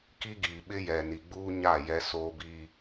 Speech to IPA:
k i˦ ɡ iː˨ ɓ ɪ˦ j ɛ˨ n i˨ ɡ͡b uː˦ ɲ a˦˨ j ɛ˦ s oː˦ b iː˦

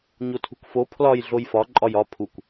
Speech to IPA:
ɲ o tʰ ṳ k f o pʰ l ɒ j ɮ o j f ɒ ǃʼ ɒ j ɒ pʰ u kʷ

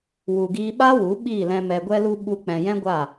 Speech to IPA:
w u˨ ɡ iː˧ ɓ a˦ w u˨˦ ɓ iː˦˨ l ɛ̃˧ m ɛ˨ ɡʷ ɛ˧ l u˧ ɓ u˧ k͡p ɛ̃˨ j ɛ̃˦ ɡʷ a˦˨

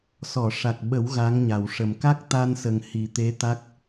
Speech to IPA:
s ɔ˨˩˨ ʂ a˨˩ k̚ ɓ ə˨˩˦ w ɣ a˧˥ ŋ ɲ a˨˩ w ʂ ə˨˩ m k a˦˥ k̚ t̪ a˧ n s ə˨˩ ŋ h i˨˩ t̪ e˧˥ t̪ a˦˥ k̚

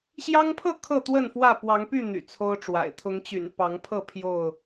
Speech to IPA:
ɕ j ɑ˦ ŋ pʰ ɤ˥˨ kʰ ɤ˥˨ t̪ w ə˥˨ n f w ä˥˨ p w ɑ˨˦ ŋ p y˥˨ n̪ y̰˨˩ t͡sʰ o˦ ʊ̯ ʈ͡ʂ w a̰˨˩ ɪ̯ t̪ʰ ʊ˨˦ ŋ t͡ɕ y̰˨˩ n p ɑ˨˦ ŋ pʰ ɤ˥˨ pʰ j o˥˨ ʊ̯

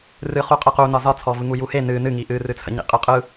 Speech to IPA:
r ɨ χ u qʼ ɨ q u n ɒ z ɒ t͡sʰ ɔ v ɯ ŋ u j u h e n ɨ n ɨ ŋ i ʔ ɨ r ɨ t͡sʰ ə̰ ɲ ḭ qʼ ɯ qʼ ɯ

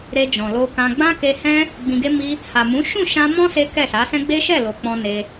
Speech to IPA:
ɾ e˧ d͡ʒ ɔ̃˨ l o˧ k ã˧ ɡ͡b ã˦ k e˧ h ɛ̃˦ | ɡ͡b ĩ˧ ɡ e˦ m i˦ | h a˨ m ũ˨˦ ʃ ũ˦˨ ʃ ã˧ m ɔ̃˦ s e˦ k ɛ˦˨ s a˨˦ s ɛ̃˦ ɡ͡b e˦ ʃ ɛ˦˨ l o˨ k͡p ɔ̃˧ n e˧

